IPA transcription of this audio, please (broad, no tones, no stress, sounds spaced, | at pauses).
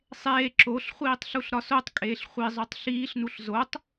sˤ eː ǁ o ɬ χʷ iː tˤ ɬ u ɬ ɾ ɒ s o tˤ kʼ eː ɬ χʷ i zˤ u tˤ ɬ iː ɬ n u ɬ z o tˤ